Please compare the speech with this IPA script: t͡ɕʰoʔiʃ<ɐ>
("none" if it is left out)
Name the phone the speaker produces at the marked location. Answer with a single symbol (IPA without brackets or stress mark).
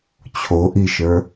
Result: ə˞